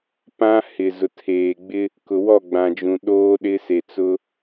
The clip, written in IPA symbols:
p ã˦ h ɪ˨ z ʊ˨ tʰ eː˨ ɡ͡b ɪ˦ | k ʊ˨ w ɔ˦˨ ɡ͡b ã˨ d͡ʒ ũ˨ ɗ oː˦ ɗ ɪ˦ s e˨ t͡s ʊ˦

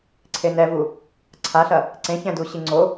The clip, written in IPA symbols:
ǀʰ e n ɛ v u | ǀʰ a ɬ ɐ | ǀ ẽ ç ɛ̃ d u ɕ i ŋ͡ǀ o

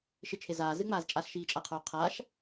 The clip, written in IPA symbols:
ʃ ɪ t͡ʃʰ e z aː z ɨ ŋ͡m aː z t͡ʃʼ a ɬ ʃ iː t͡ʃʼ a qʰ oː qʰ aː ʃ

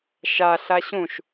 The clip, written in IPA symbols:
ʃ a ɬ a ɕ ũ ʃ

